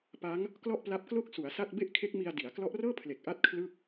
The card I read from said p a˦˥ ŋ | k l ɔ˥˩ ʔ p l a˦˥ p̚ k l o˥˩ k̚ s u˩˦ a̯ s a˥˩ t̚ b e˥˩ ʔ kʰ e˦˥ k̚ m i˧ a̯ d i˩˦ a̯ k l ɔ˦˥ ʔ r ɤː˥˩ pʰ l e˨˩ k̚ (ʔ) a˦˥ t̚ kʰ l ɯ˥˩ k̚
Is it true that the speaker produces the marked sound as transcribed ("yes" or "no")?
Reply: yes